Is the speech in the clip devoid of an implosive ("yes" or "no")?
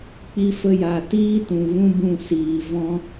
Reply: yes